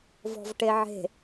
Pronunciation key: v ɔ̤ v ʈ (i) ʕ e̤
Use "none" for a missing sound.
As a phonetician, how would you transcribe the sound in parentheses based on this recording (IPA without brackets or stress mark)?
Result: e